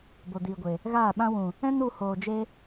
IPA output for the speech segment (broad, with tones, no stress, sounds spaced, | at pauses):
b o˨ d iː˨ ɡʷ e˨ | ɣ aː˦˨ ɓ ã˧ w ũ˨ | ɛ̃˦ n u˧ h oː˨ d͡ʒ e˧